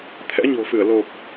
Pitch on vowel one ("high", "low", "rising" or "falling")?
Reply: rising